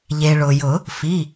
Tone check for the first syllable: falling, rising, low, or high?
low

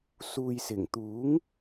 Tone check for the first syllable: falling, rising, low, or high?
low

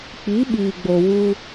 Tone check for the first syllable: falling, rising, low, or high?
rising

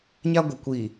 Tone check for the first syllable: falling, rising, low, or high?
high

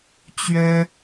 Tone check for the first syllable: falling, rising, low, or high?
high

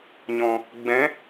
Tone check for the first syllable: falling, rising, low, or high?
low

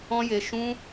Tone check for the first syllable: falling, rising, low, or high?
high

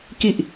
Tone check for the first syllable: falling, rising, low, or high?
low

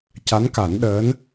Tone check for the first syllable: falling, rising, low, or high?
rising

